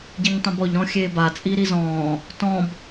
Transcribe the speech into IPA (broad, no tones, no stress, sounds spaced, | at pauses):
ɟ i ɲ tˤ õ b ɔ ʎ ɾ ɔ̃ xʲ eː b a t͡sʼ i ɾ i z ɔ̃ː | t ɔ̃ b